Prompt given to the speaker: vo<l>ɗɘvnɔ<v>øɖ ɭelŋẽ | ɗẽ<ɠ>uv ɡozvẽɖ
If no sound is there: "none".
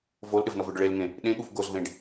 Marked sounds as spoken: l, v, ɠ

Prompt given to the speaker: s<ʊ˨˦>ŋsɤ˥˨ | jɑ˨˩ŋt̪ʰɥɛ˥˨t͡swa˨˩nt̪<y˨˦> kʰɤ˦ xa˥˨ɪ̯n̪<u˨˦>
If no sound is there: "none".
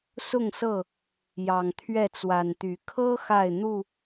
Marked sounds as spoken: ʊ˥˨, y˨˦, u˥˨

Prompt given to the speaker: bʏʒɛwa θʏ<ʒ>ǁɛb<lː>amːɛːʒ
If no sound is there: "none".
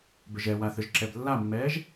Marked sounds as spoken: ʒ, lː

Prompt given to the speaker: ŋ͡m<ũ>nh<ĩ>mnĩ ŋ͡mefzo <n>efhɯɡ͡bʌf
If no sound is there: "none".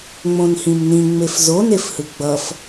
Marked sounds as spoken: õ, ĩ, n

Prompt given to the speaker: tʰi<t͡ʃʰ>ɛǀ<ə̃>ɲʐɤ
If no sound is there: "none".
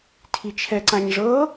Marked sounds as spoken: t͡ʃʰ, ã

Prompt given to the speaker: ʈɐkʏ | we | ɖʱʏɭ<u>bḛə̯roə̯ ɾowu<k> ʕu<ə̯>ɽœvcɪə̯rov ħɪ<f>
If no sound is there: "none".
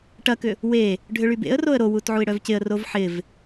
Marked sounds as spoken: y, t, ɪ̯, v

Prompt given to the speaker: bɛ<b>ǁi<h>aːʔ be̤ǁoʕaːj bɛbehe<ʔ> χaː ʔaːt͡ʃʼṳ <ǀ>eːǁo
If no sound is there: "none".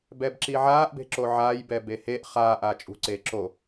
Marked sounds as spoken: b, ʕ, ʔ, ǀ

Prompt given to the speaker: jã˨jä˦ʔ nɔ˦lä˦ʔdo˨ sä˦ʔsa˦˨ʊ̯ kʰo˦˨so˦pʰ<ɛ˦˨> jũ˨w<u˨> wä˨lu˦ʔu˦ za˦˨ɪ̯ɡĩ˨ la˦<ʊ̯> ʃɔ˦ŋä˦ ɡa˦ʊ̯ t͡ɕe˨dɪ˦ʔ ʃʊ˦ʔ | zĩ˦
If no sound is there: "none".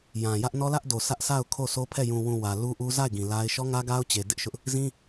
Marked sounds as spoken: ɛ˦˨, ũ˨, ɪ̯

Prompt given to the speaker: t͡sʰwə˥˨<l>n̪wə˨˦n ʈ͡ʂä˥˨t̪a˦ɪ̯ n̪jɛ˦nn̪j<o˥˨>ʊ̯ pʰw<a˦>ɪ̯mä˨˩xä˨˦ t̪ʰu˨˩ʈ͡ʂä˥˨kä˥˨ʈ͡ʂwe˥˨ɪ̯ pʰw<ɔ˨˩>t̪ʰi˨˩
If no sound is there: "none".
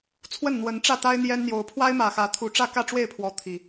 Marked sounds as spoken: n, o˨˦, a˦, ɔ˦

